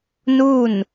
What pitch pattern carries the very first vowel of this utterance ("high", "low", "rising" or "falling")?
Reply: falling